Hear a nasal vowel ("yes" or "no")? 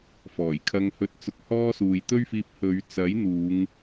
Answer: no